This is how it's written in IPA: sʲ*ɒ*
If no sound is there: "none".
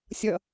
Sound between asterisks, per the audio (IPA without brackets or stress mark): ʌ